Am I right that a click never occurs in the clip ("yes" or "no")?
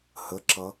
no